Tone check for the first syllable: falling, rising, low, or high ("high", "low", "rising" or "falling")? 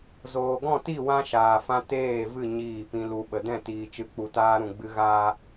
low